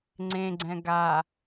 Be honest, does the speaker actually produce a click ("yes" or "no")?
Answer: yes